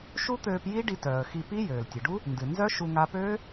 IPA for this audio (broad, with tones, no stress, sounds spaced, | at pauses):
ʃ u˦˥ t̪ øː˧ p j i˦˥ ɖ i˧ t œː˩ ə̯ x i˧ p i˦˥ j øː˩ l tʲ ɨ˩ ɖ u˦˥ | n d ɨ˩ n z œ˦˥ ʃ u˧ ŋ aː˧ p øː˦˥